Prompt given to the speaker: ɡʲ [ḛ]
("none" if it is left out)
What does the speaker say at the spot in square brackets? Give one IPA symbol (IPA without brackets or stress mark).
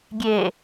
e